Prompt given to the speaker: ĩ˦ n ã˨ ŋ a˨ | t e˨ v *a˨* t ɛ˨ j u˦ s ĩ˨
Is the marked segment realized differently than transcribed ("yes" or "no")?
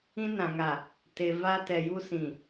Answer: yes